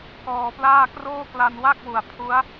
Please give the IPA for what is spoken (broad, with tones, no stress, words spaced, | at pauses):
kɔː˧plaː˥˩ kroː˥˩kla˧nwa˥˩k̚wu˨˩a̯ pʰu˦˥a̯